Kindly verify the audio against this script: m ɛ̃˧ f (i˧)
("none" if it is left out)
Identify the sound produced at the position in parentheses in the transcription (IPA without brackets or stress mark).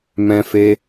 e˧